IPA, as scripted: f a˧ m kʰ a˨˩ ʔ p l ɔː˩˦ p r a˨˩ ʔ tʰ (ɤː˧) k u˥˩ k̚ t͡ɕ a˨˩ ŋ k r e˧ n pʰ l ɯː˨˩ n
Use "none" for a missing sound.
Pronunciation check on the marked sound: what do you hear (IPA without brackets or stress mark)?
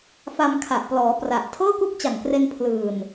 ɤː˥˩